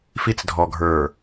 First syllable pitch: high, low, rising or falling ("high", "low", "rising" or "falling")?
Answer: low